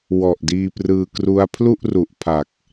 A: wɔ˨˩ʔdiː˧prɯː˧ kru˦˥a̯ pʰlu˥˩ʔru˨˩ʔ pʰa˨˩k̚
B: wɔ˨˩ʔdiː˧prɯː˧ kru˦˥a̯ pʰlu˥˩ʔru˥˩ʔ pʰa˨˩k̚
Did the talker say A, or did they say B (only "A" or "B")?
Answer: A